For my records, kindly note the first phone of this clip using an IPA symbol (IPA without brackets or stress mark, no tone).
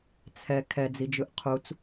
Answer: t͡sʰ